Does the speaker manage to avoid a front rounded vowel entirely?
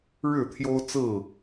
yes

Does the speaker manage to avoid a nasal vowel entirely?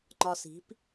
yes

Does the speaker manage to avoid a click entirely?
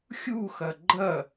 no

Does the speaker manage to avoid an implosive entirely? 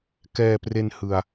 yes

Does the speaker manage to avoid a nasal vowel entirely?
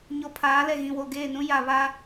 no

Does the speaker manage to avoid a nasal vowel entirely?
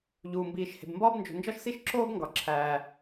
yes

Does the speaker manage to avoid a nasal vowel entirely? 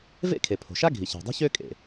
yes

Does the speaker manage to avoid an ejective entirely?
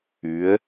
yes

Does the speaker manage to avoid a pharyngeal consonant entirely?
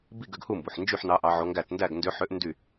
no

